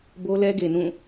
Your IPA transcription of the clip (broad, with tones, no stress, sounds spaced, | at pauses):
b o˦ l ɛ˦ ɡ e˨ n ũ˦˨